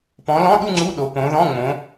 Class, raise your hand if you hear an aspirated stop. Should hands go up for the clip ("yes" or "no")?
no